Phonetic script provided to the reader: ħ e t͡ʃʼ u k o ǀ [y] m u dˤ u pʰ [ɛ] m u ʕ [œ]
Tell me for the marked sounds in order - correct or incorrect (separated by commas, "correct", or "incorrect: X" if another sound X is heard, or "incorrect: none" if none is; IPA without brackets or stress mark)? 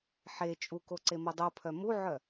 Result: incorrect: e, incorrect: œ, correct